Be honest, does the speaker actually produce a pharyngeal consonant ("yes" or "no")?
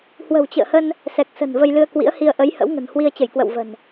no